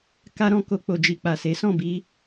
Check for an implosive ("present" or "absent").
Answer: absent